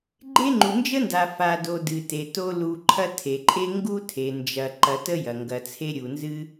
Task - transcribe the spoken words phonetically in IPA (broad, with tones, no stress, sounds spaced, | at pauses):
ɡ͡ǃ e˥ ŋ͡ǃ u˨ n d͡ʒ ə˥ n d a˨ f a˨ d o˨ d ɨ˨ t e˩ t o˦ l u˨ ǃʰ ɐ˥ tʰ e˩ ǃʼ e˥ ŋ ɡ u˥ tʰ e˩ n d͡ʒ ɐ˨ ǃ ɐ˨ t ə˥ j ɐ˩ ŋ ɡ ɐ˨ t͡sʰ e˥ ɾʲ u˨ n z ɨ˦